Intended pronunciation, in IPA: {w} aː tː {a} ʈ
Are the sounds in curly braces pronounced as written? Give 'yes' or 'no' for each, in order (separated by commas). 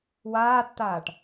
yes, no